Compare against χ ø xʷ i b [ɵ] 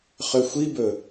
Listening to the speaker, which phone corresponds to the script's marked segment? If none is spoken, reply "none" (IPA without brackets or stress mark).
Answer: ɵ